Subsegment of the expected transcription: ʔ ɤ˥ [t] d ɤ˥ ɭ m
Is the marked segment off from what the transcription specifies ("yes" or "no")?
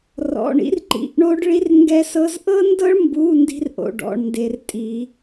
yes